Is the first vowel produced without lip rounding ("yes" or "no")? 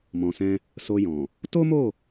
no